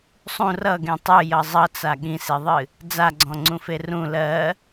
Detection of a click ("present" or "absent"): present